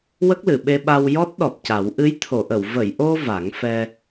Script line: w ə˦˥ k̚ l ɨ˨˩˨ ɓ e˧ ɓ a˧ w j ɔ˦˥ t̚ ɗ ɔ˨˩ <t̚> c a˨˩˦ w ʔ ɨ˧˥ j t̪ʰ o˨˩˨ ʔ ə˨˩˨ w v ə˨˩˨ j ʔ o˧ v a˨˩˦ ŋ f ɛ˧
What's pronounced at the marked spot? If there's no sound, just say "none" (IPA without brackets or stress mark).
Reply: p̚